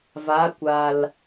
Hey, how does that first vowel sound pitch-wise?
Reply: rising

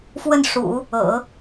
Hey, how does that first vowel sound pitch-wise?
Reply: falling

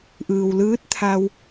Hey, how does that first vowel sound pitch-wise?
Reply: low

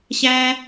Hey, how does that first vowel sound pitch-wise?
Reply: high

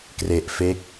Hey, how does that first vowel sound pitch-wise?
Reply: low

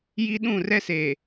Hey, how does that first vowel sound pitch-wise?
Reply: high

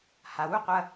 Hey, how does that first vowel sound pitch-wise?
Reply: low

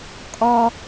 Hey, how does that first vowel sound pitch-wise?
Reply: high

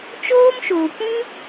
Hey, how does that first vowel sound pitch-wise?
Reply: high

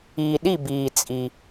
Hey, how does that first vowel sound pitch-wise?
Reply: low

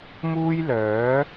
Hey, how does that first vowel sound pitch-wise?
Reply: high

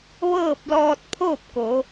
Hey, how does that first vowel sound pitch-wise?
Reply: falling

